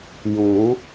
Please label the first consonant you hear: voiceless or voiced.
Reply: voiced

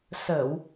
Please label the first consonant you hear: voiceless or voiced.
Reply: voiceless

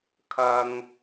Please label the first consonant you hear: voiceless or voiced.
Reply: voiceless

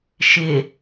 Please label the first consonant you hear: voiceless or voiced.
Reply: voiceless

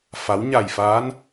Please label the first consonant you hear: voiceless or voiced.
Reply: voiceless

